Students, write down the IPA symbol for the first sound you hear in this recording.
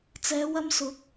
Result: t͡s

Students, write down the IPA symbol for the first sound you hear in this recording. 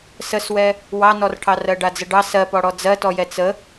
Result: s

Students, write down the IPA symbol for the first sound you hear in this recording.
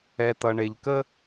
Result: ɛ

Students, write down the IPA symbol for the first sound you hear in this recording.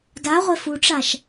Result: d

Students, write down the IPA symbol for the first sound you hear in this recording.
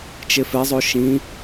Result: t͡ʃ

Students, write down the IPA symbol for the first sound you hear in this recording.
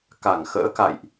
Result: k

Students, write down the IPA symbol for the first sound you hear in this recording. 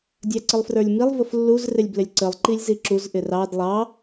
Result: dʲ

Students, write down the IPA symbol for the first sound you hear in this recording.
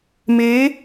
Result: m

